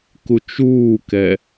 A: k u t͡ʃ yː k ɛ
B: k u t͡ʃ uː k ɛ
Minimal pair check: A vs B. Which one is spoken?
B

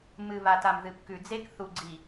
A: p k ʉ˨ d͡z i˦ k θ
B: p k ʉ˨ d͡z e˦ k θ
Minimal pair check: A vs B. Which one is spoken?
B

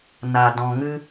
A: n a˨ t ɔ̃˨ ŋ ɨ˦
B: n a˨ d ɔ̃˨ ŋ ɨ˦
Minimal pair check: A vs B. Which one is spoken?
B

